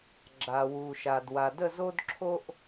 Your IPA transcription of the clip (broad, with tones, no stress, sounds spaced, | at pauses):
ɡ͡ǁ a˧ w u˧ ʃ a˧ d w a˧ d ə˥˧ z o˥ d ǁʰ o˥ ʔ